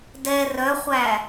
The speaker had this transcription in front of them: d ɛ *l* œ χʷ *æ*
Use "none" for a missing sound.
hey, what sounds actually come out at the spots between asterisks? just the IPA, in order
r, æ

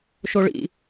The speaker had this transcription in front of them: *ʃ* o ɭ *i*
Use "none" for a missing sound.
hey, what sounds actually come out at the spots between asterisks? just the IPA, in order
ʃ, ḭ

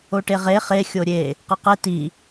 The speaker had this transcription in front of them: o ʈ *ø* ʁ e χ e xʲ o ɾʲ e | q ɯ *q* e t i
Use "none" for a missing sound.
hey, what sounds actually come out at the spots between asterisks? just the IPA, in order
e, q

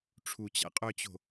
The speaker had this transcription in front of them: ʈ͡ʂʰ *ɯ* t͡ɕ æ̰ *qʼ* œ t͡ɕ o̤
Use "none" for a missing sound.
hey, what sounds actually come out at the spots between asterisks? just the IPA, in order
u, qʼ

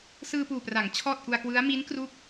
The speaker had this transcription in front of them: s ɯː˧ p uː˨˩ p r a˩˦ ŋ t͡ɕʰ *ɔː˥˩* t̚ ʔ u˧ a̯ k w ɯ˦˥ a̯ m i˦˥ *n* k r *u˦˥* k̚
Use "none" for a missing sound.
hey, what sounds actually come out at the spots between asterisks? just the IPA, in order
ɔː˥˩, n, u˦˥

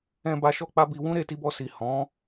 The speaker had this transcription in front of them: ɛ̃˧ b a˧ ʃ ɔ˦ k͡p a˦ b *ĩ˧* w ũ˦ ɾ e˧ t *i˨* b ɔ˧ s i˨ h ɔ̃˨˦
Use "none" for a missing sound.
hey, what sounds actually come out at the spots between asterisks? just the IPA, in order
i˧, i˧

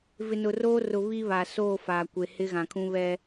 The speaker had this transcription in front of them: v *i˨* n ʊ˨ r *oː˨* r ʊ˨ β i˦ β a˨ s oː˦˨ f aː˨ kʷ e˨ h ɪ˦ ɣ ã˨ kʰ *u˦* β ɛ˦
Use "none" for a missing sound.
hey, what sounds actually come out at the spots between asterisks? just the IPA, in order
ɪ˨, oː˦, ũ˦

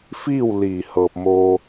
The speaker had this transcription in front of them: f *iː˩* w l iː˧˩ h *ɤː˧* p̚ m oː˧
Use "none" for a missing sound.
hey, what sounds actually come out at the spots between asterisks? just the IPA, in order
iː˥˨, ɤː˧

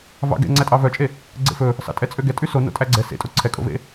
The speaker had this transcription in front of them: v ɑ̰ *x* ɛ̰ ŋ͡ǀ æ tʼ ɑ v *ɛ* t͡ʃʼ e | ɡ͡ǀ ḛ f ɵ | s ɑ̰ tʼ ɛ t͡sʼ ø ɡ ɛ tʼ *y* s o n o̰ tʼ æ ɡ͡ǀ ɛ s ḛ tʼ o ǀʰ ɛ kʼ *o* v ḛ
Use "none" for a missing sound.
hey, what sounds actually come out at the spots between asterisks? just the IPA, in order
ɡ, œ, y, o̰

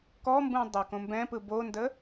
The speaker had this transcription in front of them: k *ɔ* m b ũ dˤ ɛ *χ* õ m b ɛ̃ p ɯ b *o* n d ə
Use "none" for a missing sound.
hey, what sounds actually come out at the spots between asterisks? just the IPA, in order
ɔ, k, o

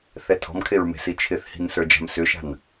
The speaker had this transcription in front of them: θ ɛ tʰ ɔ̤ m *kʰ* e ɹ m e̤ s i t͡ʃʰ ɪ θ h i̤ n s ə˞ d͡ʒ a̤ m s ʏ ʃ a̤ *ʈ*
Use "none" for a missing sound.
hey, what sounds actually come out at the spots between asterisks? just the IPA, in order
kʰ, n

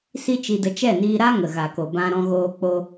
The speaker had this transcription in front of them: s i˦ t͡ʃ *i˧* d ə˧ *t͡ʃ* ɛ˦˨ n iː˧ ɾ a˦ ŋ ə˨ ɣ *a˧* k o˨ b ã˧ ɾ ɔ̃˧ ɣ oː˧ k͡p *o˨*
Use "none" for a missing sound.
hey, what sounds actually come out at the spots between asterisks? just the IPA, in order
i˧, t͡ʃ, a˨, o˧

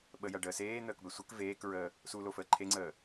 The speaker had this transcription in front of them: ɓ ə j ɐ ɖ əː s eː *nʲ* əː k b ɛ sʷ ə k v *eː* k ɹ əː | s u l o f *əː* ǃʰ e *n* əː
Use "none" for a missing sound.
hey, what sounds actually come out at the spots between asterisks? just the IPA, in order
n̪, eː, əː, ŋ͡ǀ

